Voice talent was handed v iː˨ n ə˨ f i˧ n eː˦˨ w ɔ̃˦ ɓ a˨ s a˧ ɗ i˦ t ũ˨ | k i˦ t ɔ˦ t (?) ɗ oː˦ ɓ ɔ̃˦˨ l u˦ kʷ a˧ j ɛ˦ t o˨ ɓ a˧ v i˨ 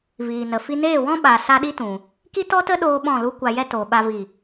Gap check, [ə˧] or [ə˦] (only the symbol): ə˦